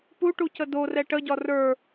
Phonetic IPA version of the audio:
puʈucə dorɛ ʈəɟɒ rə˞

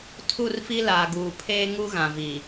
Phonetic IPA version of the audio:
tʰu˦˨rfi˦ laː˨ɡuː˨ pʰeː˦ŋu˦ɣã˨vi˨

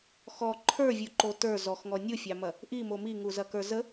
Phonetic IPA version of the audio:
xɔ ǃʰə˞vʲuǃo tə˞ zɔxŋɔ nʲufʲɑmɐ | ʔimo miŋuzɐkə˞ zə

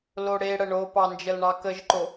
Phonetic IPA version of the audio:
loɽeɽə ɳopɑnd͡ʒəlɳɑ kəʒǃo

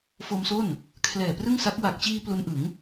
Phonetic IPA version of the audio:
fo˧mso˥˩n | kʰlɛː˨˩prɯ˥˩ŋsa˦˥k̚ wa˨˩k̚t͡ɕiː˧ plu˦˥nʔɯ˩˦ŋ

